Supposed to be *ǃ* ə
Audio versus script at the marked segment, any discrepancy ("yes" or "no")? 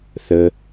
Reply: yes